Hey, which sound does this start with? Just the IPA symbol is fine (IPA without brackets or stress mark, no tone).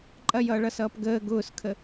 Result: ǃʼ